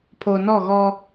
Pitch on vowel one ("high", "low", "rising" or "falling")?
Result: low